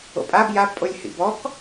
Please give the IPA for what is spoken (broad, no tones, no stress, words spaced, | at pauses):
o̰pʼab jab pʼolʲhḭbɔk